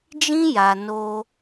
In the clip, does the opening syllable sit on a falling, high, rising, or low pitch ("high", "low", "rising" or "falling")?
high